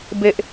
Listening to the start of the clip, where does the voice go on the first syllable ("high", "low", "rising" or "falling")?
low